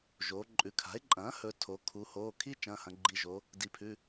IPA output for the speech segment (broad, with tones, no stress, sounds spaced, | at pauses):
ʒ oː˩˧ ǃʼ ʉ˩˧ kʰ a̤˩˥ e̯ ǃʼ ɐ̃ː˩˥ h ɵ˩˧ tʰ o˩˧ kʰ u˩˧ h oː˩˧˩ kʰ i˥ t͡ʃ ɐ̃ː˩˧˩ h ɐ̃˩˧ ɡ͡ǃ i˩˧˩ ʒ o˩˧ | d i˩˧ pʰ ʉ˩˧˩